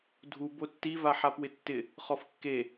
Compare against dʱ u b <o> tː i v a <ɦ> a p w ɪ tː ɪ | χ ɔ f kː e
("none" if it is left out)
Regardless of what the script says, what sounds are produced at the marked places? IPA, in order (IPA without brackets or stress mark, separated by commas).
o, ħ